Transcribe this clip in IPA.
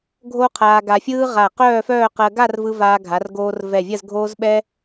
ɡʱ o˥ qʰ aː˧ ɡ a˧ fʲ ɯː˥ ʁ a˧˩ q œː˥˧ f œː˥˧ q ɜ˧ ɡ a˥˧ r v ɯ˧ v aː˧ ɡʱ a˩˧ r ɡ oː˧ r v ɛ˧˩ vʲ ɜ˥˧ z ɡʱ oː˧ z ɓ ɛ˧

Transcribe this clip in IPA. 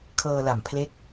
kʰ ɤː˧ l a˨˩ m pʰ l e˦˥ k̚

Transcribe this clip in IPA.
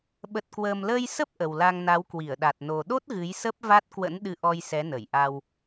ɓ ə˨˩ t̚ k w əː˨˩ m l əː˧ j s ə˦˥ p̚ ʔ ə˨˩ w l a˧ ŋ n a˨˦ w k w i˧˩ ə̯ ɗ a˨˩ t̚ n o˨˩ ɗ o˦˥ t̚ ɣ ɨ˨˦ j s ə˦˥ p̚ v a˦˥ t̚ k w ə̰˧˥ n ɗ ɨ˧ ʔ ɔ˧ j s ɛ˨˦ n ə˧˩ j ʔ a˧ w

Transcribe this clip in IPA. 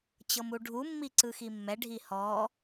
t͡ɕ ɤ m u ɖʱ u mː i ǀ ɯ x i mː ɛ ɖʱ i h ɔ

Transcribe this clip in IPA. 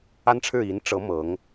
a˥ n ʈ͡ʂʰ ɻ̩˥˩ i˧˥ n ʈ͡ʂ ɤ˧˥ m ɤ˧˥ ŋ

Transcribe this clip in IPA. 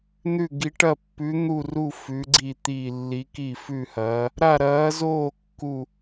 n̪ ʉ˥˧ ɡ i˧˥ ʈ ɐ˥˧ pː ʉ˧˥ n̪ u˥˧ r u˥˧ f ʉ˧˥ ɡ͡ǀ i˥˧ t̪ iː˥˧ lː i˧˥ k i˥˧ f ʉ˥˧ h ɐː˧˥ | ɾ a˥˧ ɾ ɐː˧˥ z oː˥˧ kː u˥˧

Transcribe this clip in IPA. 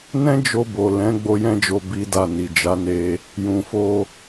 n ɛ̃˦ d͡ʒ o˧ b o˨ l ɛ̃˨˦ ɡ͡b o˦ j ɛ̃˦ d͡ʒ o˧ b i˦ d a˦˨ n i˨ d͡ʒ a˨˦ n e˧ | j ũ˨ f o˧

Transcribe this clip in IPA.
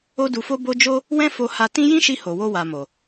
o˦ d u˧ f o˦ b o˦ d͡ʒ o˦ | w ɛ̃˦ f o˧ h a˧ t ĩ˦ j ĩ˦ ʃ i˧ h o˨ w o˧ w a˨ m o˨

